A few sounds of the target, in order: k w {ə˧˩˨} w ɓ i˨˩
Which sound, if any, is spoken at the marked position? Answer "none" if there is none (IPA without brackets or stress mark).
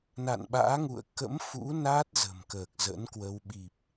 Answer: ə˧